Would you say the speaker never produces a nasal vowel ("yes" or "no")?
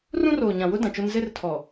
no